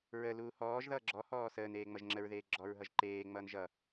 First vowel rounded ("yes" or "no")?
no